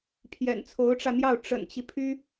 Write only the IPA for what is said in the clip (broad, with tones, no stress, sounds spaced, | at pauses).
pʰ j ɛ̰˨˩ n t͡sʰ o˧˥ ʊ̯ ʈ͡ʂ ä˧ n̪ j ɑ˥˩ ʊ̯ ʈ͡ʂ ə̰˨˩ n t͡ɕ i˦ pʰ y˥